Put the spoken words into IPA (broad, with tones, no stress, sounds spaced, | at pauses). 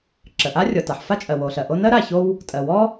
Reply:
ǁ ə˩ ʔ a˥ rʲ ɔ˩ t a˩ ħ f a˥ t͡ʃʼ ɜ˩ w o˩ ɬ ɜ˩ ʔ o˥ n ɜ˥ ɾ a˩ ç o˥ w | tʼ ɜ˩ w ɔ˥